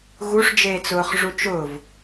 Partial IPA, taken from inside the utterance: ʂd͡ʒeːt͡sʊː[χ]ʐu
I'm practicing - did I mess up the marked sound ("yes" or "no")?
no